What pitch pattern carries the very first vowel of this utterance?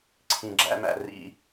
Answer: low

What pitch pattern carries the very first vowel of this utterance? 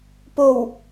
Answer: low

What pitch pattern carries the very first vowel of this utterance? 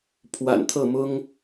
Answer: low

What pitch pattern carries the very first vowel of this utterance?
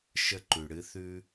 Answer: high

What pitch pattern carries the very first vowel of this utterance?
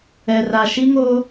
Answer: low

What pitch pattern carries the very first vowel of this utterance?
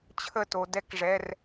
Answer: falling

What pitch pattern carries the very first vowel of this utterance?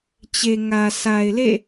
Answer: low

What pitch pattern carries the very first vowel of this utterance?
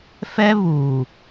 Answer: high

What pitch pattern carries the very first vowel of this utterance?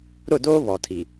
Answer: falling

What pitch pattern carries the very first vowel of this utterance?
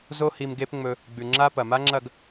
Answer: high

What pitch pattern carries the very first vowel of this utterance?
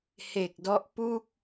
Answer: low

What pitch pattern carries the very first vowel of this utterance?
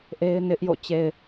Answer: high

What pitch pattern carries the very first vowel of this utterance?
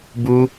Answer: high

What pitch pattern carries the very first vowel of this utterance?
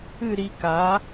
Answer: falling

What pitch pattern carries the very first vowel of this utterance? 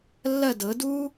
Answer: falling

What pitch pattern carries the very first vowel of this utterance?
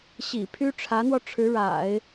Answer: low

